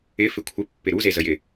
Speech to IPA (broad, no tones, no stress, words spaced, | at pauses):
ɪ fɪkʷʰɪ pːɪɾu zezəjɪ